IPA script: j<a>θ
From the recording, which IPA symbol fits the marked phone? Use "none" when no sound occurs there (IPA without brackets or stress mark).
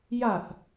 a